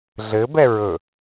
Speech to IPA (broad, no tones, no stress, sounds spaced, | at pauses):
ɮ ɘ b ɛ ɹ ɵ